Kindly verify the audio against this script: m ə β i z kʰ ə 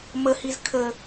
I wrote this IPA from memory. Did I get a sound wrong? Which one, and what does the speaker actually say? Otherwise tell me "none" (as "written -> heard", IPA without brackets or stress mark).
β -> h